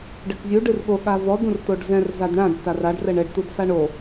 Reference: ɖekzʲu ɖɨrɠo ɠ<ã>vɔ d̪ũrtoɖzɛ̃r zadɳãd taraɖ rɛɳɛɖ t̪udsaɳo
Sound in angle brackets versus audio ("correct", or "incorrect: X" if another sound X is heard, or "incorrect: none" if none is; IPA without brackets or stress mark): incorrect: a